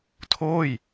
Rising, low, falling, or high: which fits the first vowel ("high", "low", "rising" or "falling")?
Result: falling